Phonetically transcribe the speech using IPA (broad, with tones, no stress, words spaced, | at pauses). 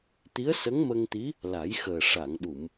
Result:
t̪i˧˥ə̯sə˧˥ŋmə˧ŋt̪i˧˥ | la˨˩˦jxəː˨˩ ʂa˨˩˨ŋɗu˨˩˨m